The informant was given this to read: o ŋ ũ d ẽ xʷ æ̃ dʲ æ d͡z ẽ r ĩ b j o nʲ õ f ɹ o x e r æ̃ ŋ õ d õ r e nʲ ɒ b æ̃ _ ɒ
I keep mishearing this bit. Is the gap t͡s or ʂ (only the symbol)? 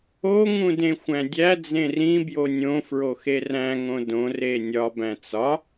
t͡s